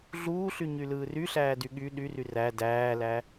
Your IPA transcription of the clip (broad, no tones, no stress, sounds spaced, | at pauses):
ɮ uː ɬ y ɲ y l ɯː r y ɬ æː d y ɠ y ɗ y r y r æ d æː l æ